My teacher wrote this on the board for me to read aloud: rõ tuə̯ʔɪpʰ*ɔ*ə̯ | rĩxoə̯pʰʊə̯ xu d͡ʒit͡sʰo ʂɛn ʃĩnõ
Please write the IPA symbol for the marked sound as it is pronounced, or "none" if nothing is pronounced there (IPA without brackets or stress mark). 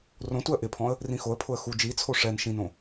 ɔ̃